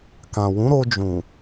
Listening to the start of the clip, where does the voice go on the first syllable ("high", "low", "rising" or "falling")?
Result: low